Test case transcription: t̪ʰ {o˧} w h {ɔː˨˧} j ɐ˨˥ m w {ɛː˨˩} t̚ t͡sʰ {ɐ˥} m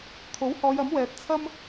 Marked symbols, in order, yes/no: no, yes, no, yes

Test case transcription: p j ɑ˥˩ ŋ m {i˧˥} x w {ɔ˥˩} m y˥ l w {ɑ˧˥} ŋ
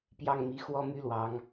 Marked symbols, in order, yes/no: yes, no, yes

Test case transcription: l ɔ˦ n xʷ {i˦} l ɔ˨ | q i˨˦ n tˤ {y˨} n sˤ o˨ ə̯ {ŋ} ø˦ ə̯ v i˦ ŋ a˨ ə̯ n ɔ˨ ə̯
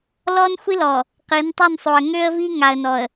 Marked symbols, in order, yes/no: yes, no, yes

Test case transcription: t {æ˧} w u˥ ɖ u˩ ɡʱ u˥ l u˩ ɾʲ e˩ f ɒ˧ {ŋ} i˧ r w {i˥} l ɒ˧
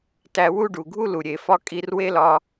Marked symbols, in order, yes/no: yes, no, no

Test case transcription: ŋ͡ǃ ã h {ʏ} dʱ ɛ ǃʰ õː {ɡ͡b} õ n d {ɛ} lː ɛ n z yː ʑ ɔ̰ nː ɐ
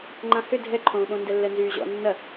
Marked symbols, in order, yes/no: yes, no, yes

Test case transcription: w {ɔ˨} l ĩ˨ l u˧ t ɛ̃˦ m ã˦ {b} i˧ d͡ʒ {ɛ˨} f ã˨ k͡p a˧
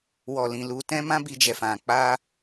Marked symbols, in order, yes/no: yes, yes, yes

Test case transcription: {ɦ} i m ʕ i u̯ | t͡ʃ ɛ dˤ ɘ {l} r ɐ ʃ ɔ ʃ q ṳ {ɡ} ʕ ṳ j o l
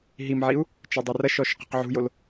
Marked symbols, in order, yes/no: yes, no, no

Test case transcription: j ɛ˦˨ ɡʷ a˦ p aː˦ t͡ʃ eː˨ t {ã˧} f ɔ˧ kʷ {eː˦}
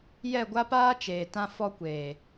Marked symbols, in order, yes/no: yes, no

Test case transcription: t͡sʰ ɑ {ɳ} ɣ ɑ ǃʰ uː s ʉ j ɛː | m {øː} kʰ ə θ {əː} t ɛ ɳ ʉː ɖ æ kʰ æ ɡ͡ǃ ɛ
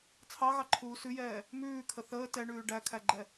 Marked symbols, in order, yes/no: no, no, yes

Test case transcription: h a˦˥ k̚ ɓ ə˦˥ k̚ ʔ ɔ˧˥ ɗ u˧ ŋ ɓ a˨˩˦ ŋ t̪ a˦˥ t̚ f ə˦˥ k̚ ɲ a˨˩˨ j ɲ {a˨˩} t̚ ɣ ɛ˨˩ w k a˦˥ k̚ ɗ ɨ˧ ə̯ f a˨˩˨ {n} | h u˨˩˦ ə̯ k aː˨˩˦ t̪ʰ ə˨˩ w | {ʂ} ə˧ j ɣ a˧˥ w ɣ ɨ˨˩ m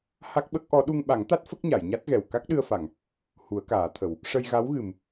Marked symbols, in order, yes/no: no, no, yes

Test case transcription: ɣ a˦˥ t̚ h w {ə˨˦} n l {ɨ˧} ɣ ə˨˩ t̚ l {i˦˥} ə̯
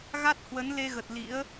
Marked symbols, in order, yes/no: yes, no, no

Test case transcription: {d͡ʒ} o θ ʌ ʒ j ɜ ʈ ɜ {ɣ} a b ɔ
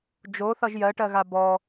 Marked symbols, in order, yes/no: yes, yes

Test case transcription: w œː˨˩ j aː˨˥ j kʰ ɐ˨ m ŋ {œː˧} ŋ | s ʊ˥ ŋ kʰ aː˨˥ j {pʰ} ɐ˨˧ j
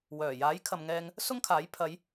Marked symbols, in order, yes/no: no, yes

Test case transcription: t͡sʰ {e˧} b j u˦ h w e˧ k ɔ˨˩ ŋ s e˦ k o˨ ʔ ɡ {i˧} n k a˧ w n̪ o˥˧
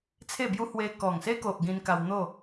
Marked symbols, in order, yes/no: no, no

